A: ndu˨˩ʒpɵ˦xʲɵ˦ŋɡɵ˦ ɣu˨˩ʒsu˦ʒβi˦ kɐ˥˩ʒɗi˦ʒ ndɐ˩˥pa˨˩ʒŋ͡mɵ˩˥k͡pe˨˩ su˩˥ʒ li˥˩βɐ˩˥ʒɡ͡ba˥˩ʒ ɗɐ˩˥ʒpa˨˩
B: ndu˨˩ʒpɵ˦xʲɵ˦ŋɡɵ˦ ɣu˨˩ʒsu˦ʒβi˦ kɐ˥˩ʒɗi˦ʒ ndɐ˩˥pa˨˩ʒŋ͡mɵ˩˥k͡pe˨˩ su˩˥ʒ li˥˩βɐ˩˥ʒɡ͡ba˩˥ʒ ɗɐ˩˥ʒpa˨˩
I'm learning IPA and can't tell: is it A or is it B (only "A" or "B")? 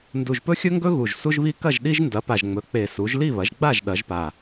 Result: A